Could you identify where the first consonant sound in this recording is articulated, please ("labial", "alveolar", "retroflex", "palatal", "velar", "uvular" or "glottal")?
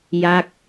palatal